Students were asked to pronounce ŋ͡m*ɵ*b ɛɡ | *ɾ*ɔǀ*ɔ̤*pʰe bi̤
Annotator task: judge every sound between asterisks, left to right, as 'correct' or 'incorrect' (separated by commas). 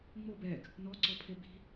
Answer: incorrect, incorrect, incorrect